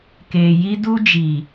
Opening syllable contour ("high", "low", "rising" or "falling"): low